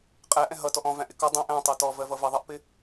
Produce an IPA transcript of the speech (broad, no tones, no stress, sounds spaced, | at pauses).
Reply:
qʼ æ ʔ ɛ̃ ɦ ʌ t ɔ ʔ ɔ̃ v æ̃ ʔ ɪ k ɒ dˤ ɛ̃ ʔ æ̃ tˤ ɜ t ɔ v ɜ v ʌ v ʌ ðˤ ʌ ʔ p ɪ